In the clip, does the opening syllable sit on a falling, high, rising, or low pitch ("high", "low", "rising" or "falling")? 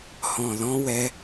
low